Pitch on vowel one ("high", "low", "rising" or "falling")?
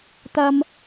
high